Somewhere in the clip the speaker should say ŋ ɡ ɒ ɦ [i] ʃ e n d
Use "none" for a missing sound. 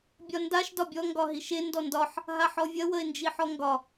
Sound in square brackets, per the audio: i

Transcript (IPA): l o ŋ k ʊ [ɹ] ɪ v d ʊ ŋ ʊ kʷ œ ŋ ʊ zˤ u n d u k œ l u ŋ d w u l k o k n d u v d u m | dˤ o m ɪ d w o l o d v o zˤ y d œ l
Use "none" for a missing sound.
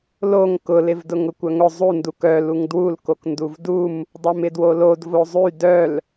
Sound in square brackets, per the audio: l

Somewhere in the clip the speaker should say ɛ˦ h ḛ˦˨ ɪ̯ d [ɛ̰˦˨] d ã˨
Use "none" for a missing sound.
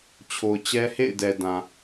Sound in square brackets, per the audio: ɛ˨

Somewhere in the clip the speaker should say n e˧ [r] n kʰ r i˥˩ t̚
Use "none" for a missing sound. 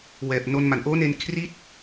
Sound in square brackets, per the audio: none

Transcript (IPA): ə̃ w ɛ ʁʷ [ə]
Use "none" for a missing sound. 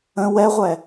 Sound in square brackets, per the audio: ɛ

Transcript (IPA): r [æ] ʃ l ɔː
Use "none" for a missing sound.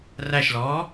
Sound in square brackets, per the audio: æ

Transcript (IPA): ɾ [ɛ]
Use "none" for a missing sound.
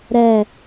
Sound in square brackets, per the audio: ɛ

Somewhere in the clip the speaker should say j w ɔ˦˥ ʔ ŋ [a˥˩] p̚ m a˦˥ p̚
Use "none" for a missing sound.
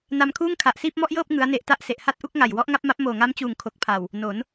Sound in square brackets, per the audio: a˦˥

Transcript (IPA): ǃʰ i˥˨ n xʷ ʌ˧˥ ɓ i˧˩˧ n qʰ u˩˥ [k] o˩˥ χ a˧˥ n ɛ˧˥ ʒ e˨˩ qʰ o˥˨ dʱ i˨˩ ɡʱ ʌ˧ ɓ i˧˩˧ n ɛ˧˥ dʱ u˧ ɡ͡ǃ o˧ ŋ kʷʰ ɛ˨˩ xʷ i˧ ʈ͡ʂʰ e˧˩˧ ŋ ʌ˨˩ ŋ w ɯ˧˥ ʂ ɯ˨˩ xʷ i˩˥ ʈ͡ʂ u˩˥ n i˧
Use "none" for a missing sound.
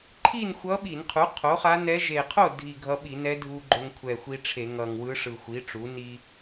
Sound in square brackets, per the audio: qʰ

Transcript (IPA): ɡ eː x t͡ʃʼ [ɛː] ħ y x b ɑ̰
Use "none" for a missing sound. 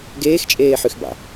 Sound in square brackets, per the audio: eː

